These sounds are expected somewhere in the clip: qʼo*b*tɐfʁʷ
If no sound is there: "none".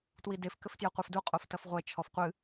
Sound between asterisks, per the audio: f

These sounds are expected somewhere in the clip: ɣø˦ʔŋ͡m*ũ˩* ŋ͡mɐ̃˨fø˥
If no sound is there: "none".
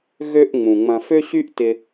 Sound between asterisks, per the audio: ũ˩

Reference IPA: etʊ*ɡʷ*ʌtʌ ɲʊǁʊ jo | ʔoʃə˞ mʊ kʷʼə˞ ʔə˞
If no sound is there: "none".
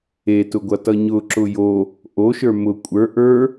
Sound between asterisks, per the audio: ɡʷ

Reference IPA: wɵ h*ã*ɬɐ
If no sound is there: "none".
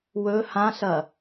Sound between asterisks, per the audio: ã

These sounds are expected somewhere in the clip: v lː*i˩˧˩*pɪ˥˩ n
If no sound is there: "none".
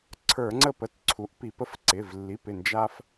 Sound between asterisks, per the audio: i˩˧˩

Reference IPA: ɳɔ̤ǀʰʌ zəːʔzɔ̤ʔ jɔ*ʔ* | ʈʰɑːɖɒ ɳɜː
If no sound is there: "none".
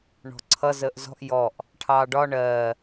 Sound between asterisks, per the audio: ʔ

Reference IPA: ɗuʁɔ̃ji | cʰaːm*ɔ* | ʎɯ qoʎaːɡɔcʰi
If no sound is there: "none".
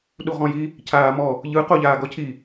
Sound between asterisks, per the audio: ɔ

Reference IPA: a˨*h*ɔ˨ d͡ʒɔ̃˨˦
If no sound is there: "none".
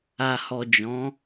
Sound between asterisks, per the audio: h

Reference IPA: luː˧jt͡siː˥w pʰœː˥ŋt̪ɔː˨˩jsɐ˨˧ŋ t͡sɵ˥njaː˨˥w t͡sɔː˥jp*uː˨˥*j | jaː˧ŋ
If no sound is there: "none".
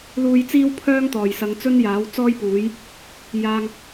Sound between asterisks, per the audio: uː˨˥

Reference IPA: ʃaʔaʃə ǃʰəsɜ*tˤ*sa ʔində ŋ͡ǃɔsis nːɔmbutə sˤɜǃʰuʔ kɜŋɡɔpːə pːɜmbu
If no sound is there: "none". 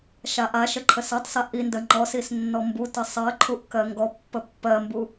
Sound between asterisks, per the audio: tˤ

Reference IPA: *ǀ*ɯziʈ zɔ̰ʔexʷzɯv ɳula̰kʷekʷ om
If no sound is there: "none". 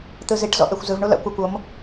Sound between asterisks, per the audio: t̪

